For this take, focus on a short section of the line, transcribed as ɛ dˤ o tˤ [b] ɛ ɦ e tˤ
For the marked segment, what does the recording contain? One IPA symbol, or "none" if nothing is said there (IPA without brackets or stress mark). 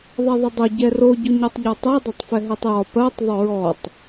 f